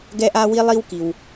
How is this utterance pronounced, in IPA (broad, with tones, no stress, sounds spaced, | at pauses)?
ɡ ɛ˥ ʔ a˥ w i˥ lˠ i˥ w k i˩ w